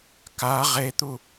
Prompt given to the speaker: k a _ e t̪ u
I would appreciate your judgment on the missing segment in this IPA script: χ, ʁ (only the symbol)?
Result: ʁ